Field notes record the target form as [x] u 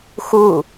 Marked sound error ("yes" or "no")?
no